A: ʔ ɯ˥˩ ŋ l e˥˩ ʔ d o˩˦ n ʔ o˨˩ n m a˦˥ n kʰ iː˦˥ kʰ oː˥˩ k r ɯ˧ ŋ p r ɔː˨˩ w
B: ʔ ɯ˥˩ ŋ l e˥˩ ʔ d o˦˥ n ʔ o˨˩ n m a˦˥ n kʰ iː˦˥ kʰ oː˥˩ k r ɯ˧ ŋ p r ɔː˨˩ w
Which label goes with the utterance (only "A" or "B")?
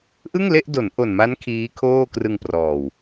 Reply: A